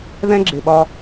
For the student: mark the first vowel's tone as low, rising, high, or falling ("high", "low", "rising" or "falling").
high